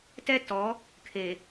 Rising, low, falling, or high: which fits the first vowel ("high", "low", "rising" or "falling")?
high